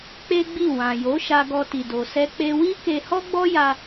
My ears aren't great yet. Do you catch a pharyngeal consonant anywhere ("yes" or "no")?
no